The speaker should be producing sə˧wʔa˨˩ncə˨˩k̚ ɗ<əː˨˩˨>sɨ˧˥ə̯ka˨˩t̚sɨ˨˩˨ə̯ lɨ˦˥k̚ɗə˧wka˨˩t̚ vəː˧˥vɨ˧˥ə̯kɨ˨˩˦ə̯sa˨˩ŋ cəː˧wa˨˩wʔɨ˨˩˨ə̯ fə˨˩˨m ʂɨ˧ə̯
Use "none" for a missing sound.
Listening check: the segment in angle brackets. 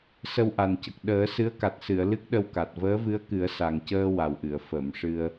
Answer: əː˨˩˦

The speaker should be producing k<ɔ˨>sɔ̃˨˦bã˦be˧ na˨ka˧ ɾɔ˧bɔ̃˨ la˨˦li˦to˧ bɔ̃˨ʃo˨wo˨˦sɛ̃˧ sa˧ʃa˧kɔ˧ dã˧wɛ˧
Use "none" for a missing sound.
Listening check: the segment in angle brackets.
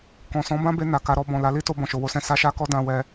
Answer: ɔ̃˨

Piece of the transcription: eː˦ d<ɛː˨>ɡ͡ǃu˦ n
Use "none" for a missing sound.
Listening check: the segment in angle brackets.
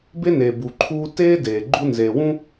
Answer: eː˨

